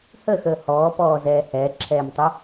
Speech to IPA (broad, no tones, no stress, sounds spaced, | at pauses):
h ə x əː h ɔː p ɔː z ɛː h ɛː ǁʰ ɛː m tˤ ʊ